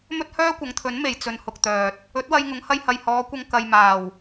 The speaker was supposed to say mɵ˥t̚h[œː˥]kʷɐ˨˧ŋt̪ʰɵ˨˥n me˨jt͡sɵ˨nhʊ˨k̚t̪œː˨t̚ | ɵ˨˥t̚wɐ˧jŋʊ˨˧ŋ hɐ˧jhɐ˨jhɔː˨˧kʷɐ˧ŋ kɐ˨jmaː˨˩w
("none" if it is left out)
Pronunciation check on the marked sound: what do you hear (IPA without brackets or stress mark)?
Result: œː˥